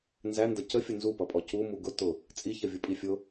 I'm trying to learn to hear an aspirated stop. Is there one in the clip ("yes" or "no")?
no